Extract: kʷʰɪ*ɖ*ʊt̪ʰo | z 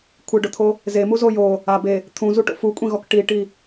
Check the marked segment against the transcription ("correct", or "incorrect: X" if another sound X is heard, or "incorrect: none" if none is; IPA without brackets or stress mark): correct